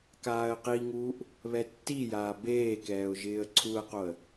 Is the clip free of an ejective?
yes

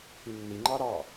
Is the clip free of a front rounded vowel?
no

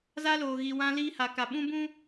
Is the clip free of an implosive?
no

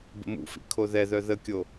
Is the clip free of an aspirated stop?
no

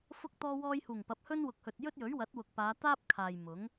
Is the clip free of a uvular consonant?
yes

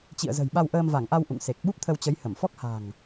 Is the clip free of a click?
yes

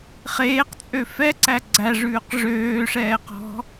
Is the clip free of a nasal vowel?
yes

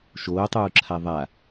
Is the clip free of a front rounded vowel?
yes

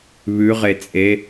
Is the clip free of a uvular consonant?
no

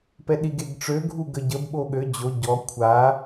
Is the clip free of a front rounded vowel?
no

